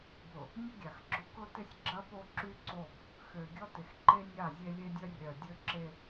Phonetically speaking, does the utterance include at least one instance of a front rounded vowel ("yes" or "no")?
yes